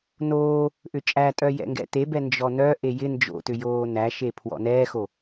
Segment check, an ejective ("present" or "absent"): present